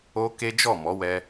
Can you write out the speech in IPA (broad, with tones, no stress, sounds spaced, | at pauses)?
o˦ k e˦ d͡ʒ ɔ˦˨ m ɔ˨˦ w ɛ˧